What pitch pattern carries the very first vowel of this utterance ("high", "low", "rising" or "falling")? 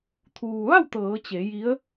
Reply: low